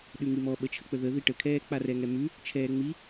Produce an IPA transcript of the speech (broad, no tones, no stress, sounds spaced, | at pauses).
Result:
ɗ ʉ ŋ i m ɔ ɓ ə t͡ʃʰ ə k͡p ə ð ə ð i ʈ ə kʰ ɛː k͡p a r ɛ ŋ ɛ m ʉ | t͡ʃʰ ɛː ŋ͡m i